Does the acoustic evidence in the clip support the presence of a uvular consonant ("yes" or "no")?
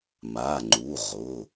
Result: yes